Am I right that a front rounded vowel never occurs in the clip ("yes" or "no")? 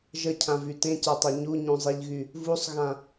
no